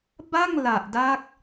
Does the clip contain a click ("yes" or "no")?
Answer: no